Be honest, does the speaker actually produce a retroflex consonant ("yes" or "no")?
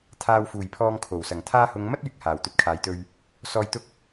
no